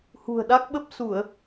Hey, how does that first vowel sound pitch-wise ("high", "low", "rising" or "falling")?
low